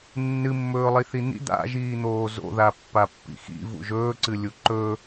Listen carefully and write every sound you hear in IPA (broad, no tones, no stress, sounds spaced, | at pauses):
nː ɨ mː ɵː lˠ i θ i n̪ ḭ d̪ a̰ ʒ iː n̪ oː z o̰ ð a pː a pː ḭ x ḭ v ṵ ʒ ɵː ǀ ɨ lʲ u ǃ ɵ